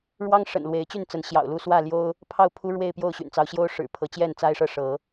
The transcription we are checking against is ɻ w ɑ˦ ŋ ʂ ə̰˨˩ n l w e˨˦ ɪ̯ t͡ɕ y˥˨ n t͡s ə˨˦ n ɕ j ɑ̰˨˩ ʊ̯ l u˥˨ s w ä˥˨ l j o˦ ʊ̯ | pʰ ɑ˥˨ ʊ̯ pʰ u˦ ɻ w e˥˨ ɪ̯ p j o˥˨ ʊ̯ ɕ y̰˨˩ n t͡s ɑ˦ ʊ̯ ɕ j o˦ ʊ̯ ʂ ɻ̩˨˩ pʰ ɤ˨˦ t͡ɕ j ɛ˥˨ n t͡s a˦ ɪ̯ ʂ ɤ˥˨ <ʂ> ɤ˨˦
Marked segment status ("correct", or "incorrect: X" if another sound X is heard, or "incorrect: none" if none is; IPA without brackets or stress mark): correct